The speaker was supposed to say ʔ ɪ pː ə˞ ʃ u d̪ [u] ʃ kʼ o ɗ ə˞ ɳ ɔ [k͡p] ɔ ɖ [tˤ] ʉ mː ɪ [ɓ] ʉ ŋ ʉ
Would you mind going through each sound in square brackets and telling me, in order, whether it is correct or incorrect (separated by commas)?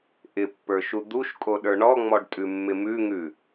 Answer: correct, incorrect, incorrect, incorrect